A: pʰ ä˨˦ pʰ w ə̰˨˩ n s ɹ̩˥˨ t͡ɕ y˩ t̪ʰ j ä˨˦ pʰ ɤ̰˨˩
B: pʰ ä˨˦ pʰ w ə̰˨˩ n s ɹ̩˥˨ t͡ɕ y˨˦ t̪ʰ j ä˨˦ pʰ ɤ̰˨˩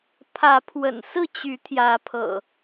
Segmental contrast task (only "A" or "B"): B